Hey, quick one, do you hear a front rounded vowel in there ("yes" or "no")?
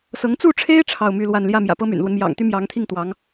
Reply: yes